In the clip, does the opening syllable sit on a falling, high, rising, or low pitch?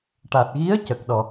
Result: low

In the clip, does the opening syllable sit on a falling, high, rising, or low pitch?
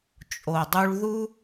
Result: low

